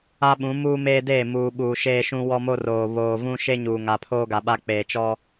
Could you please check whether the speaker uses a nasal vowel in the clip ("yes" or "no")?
yes